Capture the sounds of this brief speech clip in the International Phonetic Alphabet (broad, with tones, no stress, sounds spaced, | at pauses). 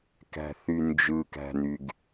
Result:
k æ̤˩ θ y˩ n d͡ʒ ɯ˩ k æ̤˩ n y˩ ɡ